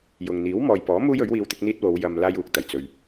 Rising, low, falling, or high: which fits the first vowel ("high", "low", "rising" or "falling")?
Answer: low